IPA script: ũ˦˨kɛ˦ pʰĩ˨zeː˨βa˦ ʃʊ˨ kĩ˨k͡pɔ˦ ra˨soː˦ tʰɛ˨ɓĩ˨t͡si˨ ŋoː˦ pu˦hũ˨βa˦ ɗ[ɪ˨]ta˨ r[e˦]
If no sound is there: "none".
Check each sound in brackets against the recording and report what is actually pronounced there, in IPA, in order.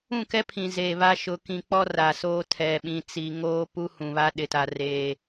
ɪ˨, eː˦

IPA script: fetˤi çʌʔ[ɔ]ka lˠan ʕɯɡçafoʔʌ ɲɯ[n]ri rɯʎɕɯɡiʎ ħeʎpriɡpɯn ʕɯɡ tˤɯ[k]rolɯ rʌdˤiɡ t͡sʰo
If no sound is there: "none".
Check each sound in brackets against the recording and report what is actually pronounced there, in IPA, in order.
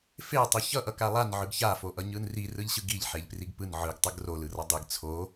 ʌ, n, ɡ

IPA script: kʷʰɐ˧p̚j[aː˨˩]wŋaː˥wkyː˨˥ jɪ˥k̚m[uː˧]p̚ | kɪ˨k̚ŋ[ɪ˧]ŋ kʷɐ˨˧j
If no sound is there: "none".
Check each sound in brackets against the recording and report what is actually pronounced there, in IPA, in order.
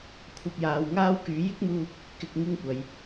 aː˨˧, uː˧, ɪ˧

